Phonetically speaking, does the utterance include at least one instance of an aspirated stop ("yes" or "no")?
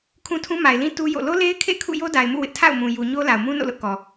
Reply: yes